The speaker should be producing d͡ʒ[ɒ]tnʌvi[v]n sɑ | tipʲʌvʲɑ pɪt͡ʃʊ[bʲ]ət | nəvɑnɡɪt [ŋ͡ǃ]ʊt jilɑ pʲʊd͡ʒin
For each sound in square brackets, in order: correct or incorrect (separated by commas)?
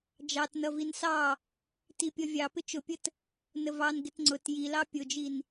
incorrect, incorrect, incorrect, incorrect